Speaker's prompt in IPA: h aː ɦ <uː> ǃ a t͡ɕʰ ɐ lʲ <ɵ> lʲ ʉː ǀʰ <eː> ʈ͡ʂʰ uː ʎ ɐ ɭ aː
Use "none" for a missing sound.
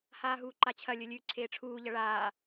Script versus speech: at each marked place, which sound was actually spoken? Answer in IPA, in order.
uː, ɵ, eː

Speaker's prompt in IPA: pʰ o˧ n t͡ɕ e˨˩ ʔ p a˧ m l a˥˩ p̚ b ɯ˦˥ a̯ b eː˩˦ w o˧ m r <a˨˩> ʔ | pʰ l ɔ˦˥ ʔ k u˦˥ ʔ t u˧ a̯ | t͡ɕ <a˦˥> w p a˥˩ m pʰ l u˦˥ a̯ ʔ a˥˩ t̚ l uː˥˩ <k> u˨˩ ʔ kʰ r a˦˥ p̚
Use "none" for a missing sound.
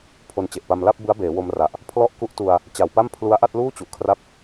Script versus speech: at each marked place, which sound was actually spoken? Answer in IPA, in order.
a˨˩, a˨˩, t͡ɕ

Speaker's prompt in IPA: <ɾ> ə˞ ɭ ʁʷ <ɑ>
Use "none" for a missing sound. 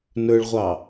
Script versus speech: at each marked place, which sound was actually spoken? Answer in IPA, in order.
n, ɑ

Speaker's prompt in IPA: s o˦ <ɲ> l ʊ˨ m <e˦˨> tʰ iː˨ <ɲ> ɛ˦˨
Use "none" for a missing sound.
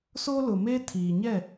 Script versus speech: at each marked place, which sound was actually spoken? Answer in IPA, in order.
none, e˦, ɲ

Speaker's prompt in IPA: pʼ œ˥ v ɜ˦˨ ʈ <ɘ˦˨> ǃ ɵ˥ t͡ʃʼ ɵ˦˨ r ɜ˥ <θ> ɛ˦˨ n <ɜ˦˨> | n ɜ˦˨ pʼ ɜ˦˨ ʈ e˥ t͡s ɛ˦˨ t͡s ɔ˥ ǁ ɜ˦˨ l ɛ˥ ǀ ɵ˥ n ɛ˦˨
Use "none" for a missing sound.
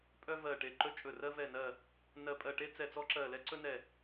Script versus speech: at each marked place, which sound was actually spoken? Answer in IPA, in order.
e˦˨, v, ɜ˦˨

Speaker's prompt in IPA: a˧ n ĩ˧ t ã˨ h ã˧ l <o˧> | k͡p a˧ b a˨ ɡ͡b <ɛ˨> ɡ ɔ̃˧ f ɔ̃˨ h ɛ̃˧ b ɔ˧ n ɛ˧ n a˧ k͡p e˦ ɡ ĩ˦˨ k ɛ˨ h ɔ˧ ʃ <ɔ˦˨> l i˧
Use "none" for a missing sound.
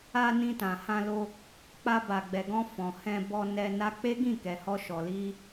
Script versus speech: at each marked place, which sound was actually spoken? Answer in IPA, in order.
o˧, ɛ˨, ɔ˨

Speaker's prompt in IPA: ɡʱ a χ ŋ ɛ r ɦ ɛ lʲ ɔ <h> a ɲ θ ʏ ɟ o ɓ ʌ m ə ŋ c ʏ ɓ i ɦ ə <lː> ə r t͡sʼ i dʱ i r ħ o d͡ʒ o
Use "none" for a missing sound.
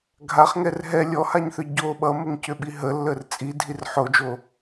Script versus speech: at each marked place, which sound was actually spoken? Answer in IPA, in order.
h, lː

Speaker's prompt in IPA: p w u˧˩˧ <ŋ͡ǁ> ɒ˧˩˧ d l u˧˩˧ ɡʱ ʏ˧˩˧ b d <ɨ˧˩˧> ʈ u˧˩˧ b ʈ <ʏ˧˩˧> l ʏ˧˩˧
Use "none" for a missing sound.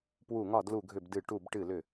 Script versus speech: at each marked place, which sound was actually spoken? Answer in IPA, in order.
ŋ, ɨ˧˩˧, ɨ˧˩˧

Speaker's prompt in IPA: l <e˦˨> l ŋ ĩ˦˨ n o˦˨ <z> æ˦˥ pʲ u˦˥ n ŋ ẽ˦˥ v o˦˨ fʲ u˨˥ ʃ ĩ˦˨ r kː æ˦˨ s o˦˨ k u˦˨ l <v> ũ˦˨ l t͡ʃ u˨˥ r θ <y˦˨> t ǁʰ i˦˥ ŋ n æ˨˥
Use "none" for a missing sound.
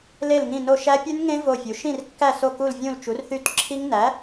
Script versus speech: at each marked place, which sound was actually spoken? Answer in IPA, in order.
e˦˨, ʃ, vʲ, y˦˨

